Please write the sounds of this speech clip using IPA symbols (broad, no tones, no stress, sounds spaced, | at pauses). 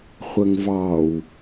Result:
χʷ ə ŋ v ɑ w